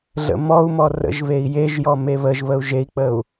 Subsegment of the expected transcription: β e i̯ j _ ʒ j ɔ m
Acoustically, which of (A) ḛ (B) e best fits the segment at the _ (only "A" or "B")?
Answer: B